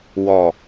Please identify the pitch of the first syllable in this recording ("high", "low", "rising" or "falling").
falling